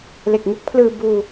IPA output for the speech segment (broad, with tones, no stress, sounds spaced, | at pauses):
l e˨˩ k̚ ŋ u˦˥ k̚ pʰ l ɯː˧ b uː˧